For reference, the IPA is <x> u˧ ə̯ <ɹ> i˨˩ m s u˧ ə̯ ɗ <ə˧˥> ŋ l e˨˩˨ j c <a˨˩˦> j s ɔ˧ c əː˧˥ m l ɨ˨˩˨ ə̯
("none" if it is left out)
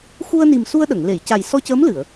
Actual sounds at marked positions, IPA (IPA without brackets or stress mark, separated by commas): x, n, ə˨˩˨, a˨˩